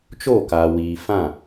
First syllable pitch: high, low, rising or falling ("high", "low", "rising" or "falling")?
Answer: falling